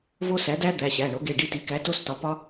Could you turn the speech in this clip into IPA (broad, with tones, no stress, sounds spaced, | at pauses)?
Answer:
v o˦˥ s æ˩˥ d æ˦˥ d̪ æ˩˧˩ ɕ æ˩˧˩ ɳ o˩˥ ɡ e˩˧˩ ɖ i˦˨ t i˩˥ k æ˩˥ t o˦˥ s t ɒ˩˥ p ɒ˦˥